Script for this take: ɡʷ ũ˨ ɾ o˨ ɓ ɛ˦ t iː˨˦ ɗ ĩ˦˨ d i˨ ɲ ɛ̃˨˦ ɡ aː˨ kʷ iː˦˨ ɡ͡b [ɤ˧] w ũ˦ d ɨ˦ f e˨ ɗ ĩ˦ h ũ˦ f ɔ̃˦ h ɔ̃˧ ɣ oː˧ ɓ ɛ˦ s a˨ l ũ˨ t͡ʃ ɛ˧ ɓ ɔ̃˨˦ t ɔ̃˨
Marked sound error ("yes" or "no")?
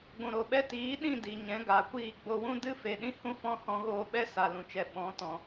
yes